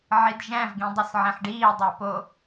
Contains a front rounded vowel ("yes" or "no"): no